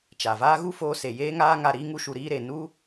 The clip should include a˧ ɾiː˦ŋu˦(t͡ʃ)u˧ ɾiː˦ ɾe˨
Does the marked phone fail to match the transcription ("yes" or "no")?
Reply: yes